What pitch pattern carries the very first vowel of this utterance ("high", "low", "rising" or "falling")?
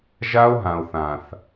high